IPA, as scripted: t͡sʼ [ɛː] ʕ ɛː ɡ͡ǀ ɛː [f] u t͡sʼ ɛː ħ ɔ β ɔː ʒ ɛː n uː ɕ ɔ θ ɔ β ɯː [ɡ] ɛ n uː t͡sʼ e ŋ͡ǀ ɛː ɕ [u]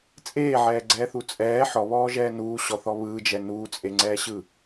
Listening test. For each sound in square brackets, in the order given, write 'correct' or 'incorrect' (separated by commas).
incorrect, incorrect, incorrect, incorrect